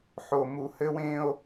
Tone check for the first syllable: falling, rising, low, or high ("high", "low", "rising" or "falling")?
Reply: low